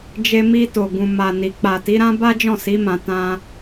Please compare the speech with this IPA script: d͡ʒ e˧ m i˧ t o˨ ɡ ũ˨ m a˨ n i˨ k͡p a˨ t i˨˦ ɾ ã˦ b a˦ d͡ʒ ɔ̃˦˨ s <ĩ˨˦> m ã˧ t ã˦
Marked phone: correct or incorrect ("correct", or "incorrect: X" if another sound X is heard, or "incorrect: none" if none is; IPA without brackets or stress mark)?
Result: incorrect: i˨˦